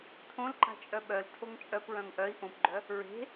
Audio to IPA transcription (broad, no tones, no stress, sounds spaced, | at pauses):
tʰ õ l ǃ a̤ t͡ʃʼ œ ɓ œ l tʰ o ŋ t͡ʃʼ œ p ɹ œ̃ ŋ ʔ œ i̯ ʔ õ p ɡ͡ǃ œ | ɹ e̤